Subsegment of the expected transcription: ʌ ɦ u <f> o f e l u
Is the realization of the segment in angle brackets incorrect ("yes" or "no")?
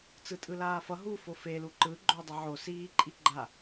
no